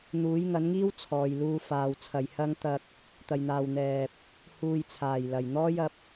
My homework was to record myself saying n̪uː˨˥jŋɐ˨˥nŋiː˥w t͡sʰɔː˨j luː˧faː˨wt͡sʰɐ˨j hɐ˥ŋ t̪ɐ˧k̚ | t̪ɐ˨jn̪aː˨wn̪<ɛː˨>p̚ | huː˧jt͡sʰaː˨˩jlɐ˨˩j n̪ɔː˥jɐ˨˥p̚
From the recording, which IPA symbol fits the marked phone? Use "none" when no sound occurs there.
ɛː˨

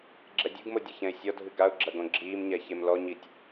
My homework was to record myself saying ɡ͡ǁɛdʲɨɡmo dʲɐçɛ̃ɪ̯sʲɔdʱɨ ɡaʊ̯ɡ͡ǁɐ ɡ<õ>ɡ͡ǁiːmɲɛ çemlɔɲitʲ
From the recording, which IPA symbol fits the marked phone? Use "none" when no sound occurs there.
õ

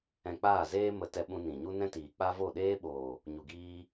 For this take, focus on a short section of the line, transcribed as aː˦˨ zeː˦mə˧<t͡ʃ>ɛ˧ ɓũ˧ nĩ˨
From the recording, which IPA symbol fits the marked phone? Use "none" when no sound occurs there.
t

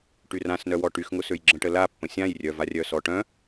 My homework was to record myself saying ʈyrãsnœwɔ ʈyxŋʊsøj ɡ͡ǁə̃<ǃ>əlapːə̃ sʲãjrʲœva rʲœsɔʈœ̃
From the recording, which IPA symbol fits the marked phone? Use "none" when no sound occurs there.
ʈ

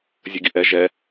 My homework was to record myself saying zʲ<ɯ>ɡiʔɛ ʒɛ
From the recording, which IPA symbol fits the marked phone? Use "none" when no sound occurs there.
ə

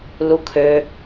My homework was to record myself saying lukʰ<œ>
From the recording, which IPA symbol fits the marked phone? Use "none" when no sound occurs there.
ø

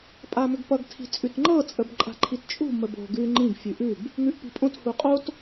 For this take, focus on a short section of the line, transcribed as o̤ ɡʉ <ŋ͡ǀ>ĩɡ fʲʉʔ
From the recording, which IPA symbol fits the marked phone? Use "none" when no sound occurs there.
ŋ͡ǃ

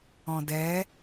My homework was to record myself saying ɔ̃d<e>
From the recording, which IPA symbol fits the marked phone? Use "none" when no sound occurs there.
ɛ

